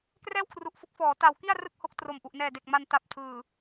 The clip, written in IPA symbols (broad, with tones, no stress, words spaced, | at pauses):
krɛː˥˩wkʰru˨˩ʔfo˦˥k̚fɔː˩˦ ta˩˦wki˥˩a̯ rɯ˥˩k̚ho˦˥k̚ tro˩˦mʔu˨˩ʔnɛː˨˩de˨˩k̚ ma˧nta˨˩p̚tʰɯː˨˩